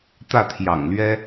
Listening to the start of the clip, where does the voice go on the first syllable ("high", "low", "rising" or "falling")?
falling